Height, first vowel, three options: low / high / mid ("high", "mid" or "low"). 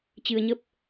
high